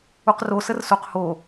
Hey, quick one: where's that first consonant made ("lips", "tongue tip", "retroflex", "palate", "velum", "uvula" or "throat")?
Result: uvula